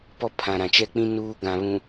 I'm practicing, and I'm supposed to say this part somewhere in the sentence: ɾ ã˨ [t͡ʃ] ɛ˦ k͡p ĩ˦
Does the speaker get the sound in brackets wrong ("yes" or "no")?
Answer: no